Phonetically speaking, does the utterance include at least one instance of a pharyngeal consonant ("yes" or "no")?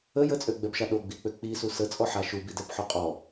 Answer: yes